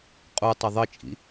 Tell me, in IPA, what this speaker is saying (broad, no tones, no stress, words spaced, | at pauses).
qʼutˤɐ ðˤɘt͡ʃʼḭ